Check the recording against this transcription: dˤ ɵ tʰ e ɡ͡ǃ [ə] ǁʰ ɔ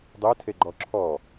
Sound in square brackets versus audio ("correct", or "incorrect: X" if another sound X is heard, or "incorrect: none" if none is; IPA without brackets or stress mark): incorrect: ɔ